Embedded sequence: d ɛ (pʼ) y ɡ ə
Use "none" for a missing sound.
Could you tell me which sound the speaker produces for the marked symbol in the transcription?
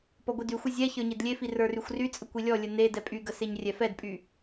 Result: pʼ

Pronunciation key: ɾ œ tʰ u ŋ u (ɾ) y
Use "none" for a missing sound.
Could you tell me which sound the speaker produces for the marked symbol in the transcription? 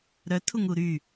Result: ɾ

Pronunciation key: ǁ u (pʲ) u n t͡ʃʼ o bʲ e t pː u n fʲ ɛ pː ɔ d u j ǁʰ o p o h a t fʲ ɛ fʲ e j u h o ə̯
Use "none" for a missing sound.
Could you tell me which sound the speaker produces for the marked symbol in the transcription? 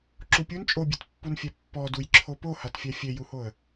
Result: pʲ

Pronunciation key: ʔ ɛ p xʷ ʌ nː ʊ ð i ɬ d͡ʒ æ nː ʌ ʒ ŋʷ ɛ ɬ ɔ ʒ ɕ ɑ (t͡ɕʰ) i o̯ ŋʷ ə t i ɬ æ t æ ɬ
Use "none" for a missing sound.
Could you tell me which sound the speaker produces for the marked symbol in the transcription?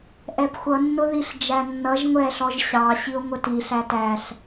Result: ɕ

